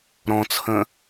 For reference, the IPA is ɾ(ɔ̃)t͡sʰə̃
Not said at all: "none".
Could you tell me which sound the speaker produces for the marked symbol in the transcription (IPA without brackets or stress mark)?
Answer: ɔ̃